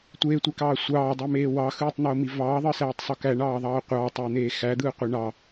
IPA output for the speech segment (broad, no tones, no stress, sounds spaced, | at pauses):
tʷ eː tʷ e k ɑː sʷ ɑː dˤ ø m eː w ɑ x ɯː tˤ n̪ oː m i v ɑː ðˤ ɯ s æː tˤ sˤ o k æ ɳ ɑː ðˤ ɑː qʷ ɑː tˤ ɯː n̪ eː x æ d̪ ɯː qʷ ɯ ɳ ɑ